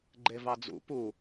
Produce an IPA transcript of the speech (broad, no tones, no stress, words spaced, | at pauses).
ɡ͡ǃevɑd͡zṵ pu